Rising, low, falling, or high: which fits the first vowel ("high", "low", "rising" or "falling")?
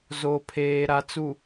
low